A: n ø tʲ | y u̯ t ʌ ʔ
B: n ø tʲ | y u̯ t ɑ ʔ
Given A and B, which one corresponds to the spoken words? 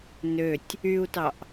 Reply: B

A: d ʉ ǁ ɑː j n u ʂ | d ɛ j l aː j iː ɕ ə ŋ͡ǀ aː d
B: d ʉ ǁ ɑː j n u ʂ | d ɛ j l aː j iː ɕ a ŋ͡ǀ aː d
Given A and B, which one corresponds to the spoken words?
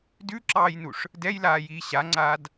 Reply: B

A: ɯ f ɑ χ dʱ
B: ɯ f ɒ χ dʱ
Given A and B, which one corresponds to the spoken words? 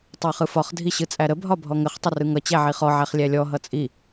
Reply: B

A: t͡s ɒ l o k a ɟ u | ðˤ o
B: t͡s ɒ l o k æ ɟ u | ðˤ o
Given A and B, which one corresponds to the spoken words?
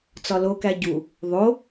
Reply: B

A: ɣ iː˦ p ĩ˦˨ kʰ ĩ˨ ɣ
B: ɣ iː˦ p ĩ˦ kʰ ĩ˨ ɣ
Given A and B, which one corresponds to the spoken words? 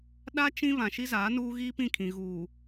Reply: A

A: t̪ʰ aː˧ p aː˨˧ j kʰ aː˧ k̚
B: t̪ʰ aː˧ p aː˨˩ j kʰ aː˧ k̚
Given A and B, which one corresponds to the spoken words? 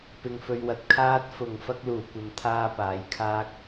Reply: A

